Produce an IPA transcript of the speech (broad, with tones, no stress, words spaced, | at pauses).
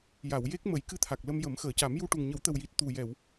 ja˨˩˨wje˦˥k̚ mə˨˩˦j kɨ˧t̪ʰa˨˩k̚lə˧m jə˨˩˦mxəː˨˩˨ca˨˩˦m ju˧ ʈu˨˩ŋɲə˨˩˦wt̪ə˨˩wji˨˩t̚ t̪u˨˩jɛ˨˩˨w